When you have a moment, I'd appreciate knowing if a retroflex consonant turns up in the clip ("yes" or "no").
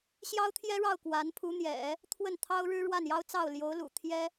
yes